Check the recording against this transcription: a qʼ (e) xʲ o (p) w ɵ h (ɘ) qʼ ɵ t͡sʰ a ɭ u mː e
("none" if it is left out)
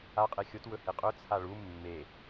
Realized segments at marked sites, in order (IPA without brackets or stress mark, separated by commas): e, t, e